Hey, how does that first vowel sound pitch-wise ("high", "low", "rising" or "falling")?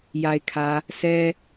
low